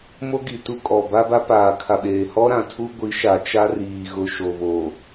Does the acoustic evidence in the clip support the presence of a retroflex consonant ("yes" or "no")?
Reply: no